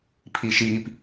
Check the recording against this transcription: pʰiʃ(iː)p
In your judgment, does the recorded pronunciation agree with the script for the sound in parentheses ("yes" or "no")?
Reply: yes